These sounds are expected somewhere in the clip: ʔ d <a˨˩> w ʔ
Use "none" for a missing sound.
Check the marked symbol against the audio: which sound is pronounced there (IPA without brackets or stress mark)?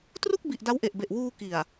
a˦˥